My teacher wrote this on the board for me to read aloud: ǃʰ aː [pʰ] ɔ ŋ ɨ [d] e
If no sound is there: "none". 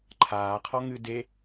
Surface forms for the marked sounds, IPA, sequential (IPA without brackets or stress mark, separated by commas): qʰ, d